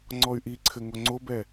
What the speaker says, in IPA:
ŋ͡ǀ ɔ y̯ ʔ i ǀʰ ɘ ŋ o ŋ͡ǀ o b ɛ

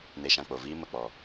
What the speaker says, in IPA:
n e˧ ʃ ã˧ k͡p o˨ v iː˦ m ə˦˨ k͡p ɔ˨

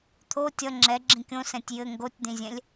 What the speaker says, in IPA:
t̪ʰ o tʲ ʌ ŋ͡ǁ ɛ ɡ͡ǁ ĩ kʲ õ s ɛ̃ tʲ j ɘ ŋ ɡ o tʲ d̪ ĩ zʲ ɛ̃ lʲ

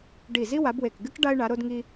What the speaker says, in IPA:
ɖ i˧˩ z i˥ w a˨˥ b w e˧˩ k ɡ ɨ˥ k ɖ a˥ ɪ̯ ɳ a˨˥ ɾ o˥ d ŋ i˥

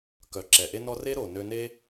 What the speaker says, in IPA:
k œ˨ ǁ ɛ˨ ʔ e˦ n ɔ˦ r e˦ ɾ o˨ n ø˧ n e˦

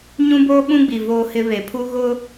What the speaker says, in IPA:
ɲ ũ˦ b oː˦ ɓ ũ˦ ɡ͡b i˨ v oː˦ h ɪ˦ β e˨ pʰ u˦ ɣ ʊ˦

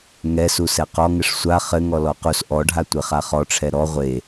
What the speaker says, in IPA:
ŋ ɛ s u s ɛ q ɔ ŋ ɘ ʂ sʷ a χ ɘ ŋ ɔ l ɔ q u s ʔ ɔ ɖʱ a tʷ e χ a χ ɔ ʈ͡ʂʰ ɛ ɾ ɔ ʁʷ e

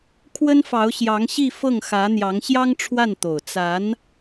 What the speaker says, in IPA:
kʰ w ə˥ n f ɑ˧˥ ʊ̯ ɕ j ɑ˧˥ ŋ ɕ i˥˧ f ɤ˥˩ ŋ x ä˧˥ n̪ j ɑ˧˥ ŋ ɕ j ɑ˥ ŋ ʈ͡ʂʰ w a˥˩ n t̪ o˨˩ ʊ̯ t͡s a˧˥ n

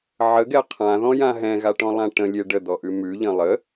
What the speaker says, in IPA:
ʕ ə ɡ ɛ qʰ ã ð ɔ̃ j ã ɦ ɛ̃ ɣ a ʈ ɔ̃ lˠ ã ʈ ə̃ lʲ e ɖ ə d̪ ɔ ʔ ʉ m ʉ ʎ ə̃ lˠ ə

